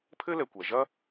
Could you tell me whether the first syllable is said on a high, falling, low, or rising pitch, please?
high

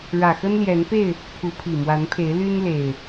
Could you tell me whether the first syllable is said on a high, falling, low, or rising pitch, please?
low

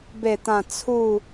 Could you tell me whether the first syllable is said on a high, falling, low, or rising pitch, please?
falling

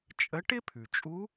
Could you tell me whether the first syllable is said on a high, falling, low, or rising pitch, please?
rising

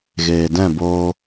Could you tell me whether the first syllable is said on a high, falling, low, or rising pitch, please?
low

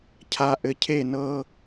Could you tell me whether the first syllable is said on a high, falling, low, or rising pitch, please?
low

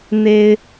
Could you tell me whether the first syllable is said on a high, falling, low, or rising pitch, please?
high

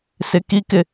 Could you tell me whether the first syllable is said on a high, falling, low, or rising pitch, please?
rising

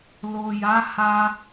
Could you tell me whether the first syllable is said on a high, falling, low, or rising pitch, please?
low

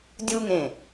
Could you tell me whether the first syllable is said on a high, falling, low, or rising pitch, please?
high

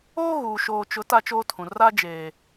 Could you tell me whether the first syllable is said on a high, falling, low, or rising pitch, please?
high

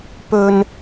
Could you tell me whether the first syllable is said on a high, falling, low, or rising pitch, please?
low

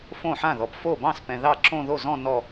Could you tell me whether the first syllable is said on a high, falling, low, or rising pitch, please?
falling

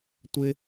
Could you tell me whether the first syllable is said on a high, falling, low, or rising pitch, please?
high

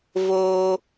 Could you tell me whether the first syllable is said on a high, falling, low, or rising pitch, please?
high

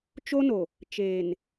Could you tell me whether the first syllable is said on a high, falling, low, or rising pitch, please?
high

